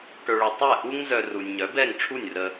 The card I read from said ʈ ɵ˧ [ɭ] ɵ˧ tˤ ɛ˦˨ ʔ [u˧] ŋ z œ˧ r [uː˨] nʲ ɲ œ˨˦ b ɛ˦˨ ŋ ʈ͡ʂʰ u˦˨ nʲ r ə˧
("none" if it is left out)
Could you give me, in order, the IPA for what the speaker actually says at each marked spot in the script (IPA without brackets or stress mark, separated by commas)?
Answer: ɭ, u˦, u˨